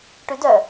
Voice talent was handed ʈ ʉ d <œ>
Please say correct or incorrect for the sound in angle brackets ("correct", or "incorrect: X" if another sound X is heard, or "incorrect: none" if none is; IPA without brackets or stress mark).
correct